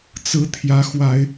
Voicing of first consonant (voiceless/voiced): voiceless